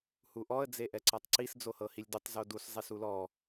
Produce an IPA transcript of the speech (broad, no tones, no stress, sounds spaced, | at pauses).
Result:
h u ʔ ɔ ə̯ d͡z e ʔ ɛ ǀ a tˤ ǀ i s d͡z o h ɤ h i lʲ d u tˤ z o d u s zˤ e s u l ɔ